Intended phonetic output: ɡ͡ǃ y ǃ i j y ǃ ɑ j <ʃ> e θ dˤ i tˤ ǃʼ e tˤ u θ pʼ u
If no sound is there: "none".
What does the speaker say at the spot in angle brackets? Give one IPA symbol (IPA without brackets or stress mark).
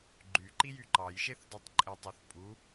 ʃ